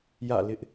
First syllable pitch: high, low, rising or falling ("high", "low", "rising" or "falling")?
falling